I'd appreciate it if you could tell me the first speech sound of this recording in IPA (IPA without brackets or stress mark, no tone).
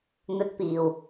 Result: n̪